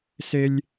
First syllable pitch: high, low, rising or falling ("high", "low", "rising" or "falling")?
high